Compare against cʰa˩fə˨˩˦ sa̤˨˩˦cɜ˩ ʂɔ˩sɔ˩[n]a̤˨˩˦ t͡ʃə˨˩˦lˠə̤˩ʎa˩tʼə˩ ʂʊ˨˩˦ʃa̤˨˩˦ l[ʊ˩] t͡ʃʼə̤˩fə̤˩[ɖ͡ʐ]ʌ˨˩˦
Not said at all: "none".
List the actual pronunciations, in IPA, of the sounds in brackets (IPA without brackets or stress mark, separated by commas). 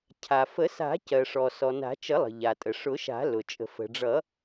n, ʊ˩, ɖ͡ʐ